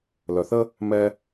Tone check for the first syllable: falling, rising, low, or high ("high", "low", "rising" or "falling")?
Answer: low